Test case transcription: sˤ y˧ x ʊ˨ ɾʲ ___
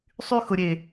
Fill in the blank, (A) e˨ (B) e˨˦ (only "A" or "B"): A